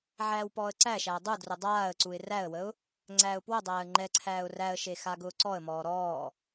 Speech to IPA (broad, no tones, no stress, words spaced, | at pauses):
ʕæːwpɔːə̯ǀæʃæː dˤudrʊ dˤaːə̯ǀuɪ̯ ræə̯wəʊ̯ | ŋ͡ǀæːʊ̯pwʊdˤæːə̯ ŋ͡ǃɛǀʰæːʊ̯ ræə̯ʃe xaɡʊːǀɔə̯mɔː ɾɔː